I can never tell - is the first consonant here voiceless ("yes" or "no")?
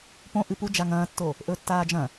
yes